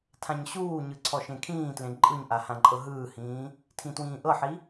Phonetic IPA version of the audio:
tʰ ã ɲ ɕ uː ɲ ɯ ǀʰ ɔ ʃ ẽ kʰ ĩː t l ẽ ǃʼ ɯ ɲ ʔ a h ã ǃʼ ɤ ɦ ɯː h ĩː | tʰ ĩ t w ĩː ʔ ɤ ħ i

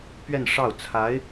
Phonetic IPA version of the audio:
p ɥ ɛ˥˧ n ʂ ɑ˥˩ ʊ̯ t͡sʰ a˧˥ ɪ̯

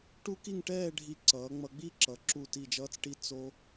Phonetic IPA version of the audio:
ʈ u˥ k i˥˧ ŋ ʈ ɛː˥˧ ɖʱ i˧ ǀ ʌː˩˧ ŋ͡m ʌ˧ ɡ͡b i˥˧ ǁ ʌ˩˧ ǁ u˧˩ t i˧˩ d͡ʒ ʌː˧ t͡s ʈ i˧ t͡s o˧

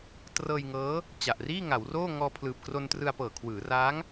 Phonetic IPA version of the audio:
t r ɤː˧ j ŋ ɤː˦˥ | t͡ɕ a˨˩ ʔ r iː˥˩ ŋ a˩˦ w r oː˥˩ ŋ ɔː˧ pʰ l ɯː˨˩ p̚ k r o˧ n t r ɯ˧ a̯ p ɤː˨˩ kʰ w ɯː˩˦ r aː˦˥ ŋ

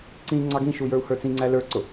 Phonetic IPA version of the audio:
ǀ ĩ ŋ͡ǀ ɑ ɡ ĩ ʃ u j ə˞ u̯ h ə˞ t͡s ĩ ŋ͡ǀ æ l ə˞ ǀ ʊ

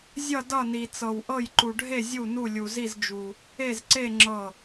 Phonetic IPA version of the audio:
zʲ ʌ˥˨ d ʌ˥˨ n i˧ t͡s ɤ˧ w ʔ ɤ˥˨ j ǃ u˧ ɖʱ e˥˨ zʲ u˥˨ n u˥˨ lʲ u˧ z i˥˨ z d͡ʒ u˧ | e˥˨ z ǀ e˥˨ ŋ͡ǁ ɤ˥˨

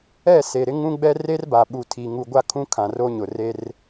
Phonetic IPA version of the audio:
ɛ˦˨ s e˨ ɾ ɪ˦ ŋ ũ˦ ɡ͡b ɛ˦ r e˦ r b a˨ ɓ u˨ tʰ i˨ ŋ u˨ ɡʷ a˦ kʰ ũ˦ kʰ ã˨ r o˦ ɲ ʊ˨ r e˦ r

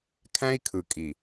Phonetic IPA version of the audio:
kʰ æ̃˦ i̯ kʰ ɯ˨ kʼ i˨

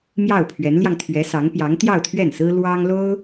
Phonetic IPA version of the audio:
m j ɑ˥˩ ʊ̯ pʰ ɥ ɛ˧˥ n l j ɑ˧ ŋ t̪ʰ ɥ ɛ˧˥ s ɑ˧˥ ŋ p j ɑ˧˥ ŋ t̪ j ɑ˥˧ ʊ̯ t̪ʰ ɥ ɛ˥˩ n s ɹ̩˥ l w ɑ˥ ŋ l o˥ ʊ̯

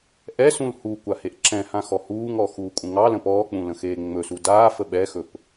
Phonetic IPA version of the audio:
ʔ ɛ s ũ l h u kʷ a h e ʔ ǁ ɛ̃ h ã x ɔ h uː ŋ ɔ x uː kʷʼ ə̃ ŋ ɑ l ə̃ p ɔː k͡p ũ l ə̃ x eː ŋ͡m ɵ s u d aː f ə ɓ ɛ x ɵ p

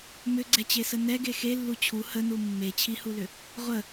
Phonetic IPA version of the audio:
m ʏ ɡ͡ǀ ɛ t͡ɕ e s ə n ɛ ɡ e x e lː u t͡ɕʰ u h ə n u mː e t͡ɕʰ i h u l ʏ | ʁʷ ə

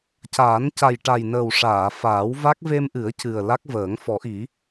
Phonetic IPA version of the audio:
c aː˨˩˦ n c a˨˩ j ʈ a˨˩ j n əː˨˩ w ʂ aː˨˩˨ f aː˨˩˦ w v a˦˥ k̚ v e˧ m ʔ ɨ˨˩˦ ə̯ c ɨ˨˩ ə̯ l a˦˥ k̚ v əː˨˩˦ ŋ f ɔ˨˩˦ ʔ i˨˩˦

